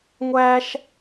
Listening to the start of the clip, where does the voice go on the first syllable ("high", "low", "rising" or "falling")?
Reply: high